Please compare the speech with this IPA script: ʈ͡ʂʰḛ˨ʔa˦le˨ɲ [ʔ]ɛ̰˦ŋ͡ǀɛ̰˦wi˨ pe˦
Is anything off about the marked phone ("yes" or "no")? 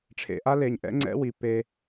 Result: no